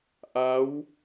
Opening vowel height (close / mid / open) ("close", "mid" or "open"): open